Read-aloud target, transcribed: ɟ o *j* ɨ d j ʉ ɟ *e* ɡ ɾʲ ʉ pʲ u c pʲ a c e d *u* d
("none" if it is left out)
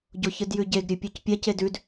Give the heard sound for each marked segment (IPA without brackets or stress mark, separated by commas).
ç, e, ʉ